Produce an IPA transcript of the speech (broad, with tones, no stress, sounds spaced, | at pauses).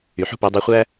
y˩ ħ ṳ˥ p i˩˧ dˤ i˧ χʷ æ˥